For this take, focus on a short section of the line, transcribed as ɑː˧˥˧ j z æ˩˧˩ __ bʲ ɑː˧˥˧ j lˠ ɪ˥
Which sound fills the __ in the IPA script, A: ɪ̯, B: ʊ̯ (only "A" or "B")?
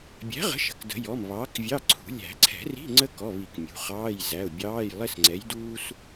B